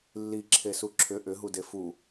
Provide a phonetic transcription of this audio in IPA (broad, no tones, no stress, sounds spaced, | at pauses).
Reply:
lː i ǁʰ e s u ǁʰ ʏ ʔ ʏ ɦ u d e f u